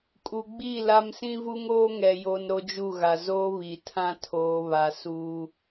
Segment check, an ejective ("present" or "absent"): present